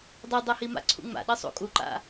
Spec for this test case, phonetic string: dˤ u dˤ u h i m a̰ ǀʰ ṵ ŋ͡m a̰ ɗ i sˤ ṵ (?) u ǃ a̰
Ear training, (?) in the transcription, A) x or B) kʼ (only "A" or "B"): B